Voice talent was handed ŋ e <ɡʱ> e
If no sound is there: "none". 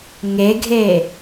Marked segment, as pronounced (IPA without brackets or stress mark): ɡʱ